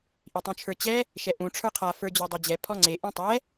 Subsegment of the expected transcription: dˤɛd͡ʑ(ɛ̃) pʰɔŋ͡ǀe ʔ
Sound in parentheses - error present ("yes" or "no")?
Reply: yes